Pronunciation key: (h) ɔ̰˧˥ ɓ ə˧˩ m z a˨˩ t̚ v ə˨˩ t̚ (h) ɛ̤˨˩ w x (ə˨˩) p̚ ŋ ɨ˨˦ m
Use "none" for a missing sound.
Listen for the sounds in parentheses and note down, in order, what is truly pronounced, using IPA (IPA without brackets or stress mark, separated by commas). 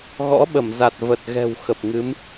ɣ, ɣ, ə˨˩